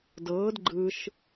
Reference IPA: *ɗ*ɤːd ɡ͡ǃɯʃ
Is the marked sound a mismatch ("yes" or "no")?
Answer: yes